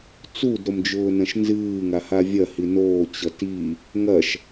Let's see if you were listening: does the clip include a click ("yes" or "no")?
no